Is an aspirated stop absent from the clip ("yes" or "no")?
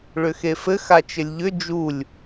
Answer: yes